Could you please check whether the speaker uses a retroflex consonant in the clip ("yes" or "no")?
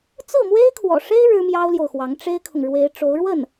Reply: yes